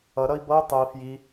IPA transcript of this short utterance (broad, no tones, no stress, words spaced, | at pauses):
ʌ ɾʌi̯bʌu̯ tˤui̯ fji